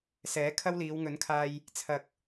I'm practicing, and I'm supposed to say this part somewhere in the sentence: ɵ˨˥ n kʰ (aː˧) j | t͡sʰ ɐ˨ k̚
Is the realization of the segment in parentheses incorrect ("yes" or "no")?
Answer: no